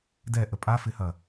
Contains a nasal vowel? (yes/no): no